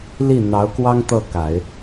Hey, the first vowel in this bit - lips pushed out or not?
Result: no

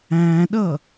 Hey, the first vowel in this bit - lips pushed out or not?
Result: no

